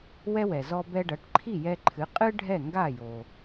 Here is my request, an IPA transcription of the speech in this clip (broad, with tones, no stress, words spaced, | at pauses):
wɛ˥wɛ˩ zɔ˧bɛ˧ɖɐ˩˥ʈǃʰi˥˩ jɛ˧ǃʰɨ˩˥ qʼɨ˥ ɖʱɛ˥˩ŋɡa˥˩ jo˩